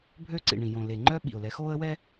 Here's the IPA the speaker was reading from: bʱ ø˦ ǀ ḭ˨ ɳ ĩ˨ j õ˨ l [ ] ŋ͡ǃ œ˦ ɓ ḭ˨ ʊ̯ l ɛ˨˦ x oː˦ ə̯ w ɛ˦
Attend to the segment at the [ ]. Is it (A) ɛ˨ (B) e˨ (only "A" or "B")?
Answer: B